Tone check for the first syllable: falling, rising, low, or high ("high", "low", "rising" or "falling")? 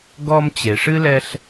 high